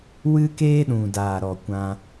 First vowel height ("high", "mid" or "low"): high